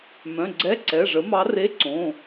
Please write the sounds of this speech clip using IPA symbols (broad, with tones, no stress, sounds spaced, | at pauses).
m œ̃˩˧˩ ɡ͡ǀ ɛ˧˥˧ ǀ ɛ˩˧˩ ʐ ə˩˥ m ɑ˧˥ r e˧˥˧ ǀ õ˩˧˩